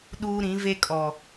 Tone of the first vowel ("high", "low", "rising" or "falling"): high